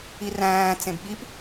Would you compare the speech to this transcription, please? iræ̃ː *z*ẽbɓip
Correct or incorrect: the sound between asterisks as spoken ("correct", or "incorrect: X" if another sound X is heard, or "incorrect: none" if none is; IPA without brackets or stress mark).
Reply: incorrect: t͡s